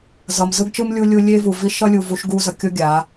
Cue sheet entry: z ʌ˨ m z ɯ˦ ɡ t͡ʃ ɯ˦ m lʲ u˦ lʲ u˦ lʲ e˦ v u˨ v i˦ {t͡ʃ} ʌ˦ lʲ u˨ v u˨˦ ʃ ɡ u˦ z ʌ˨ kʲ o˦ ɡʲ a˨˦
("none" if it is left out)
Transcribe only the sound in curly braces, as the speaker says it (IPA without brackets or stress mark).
ʃ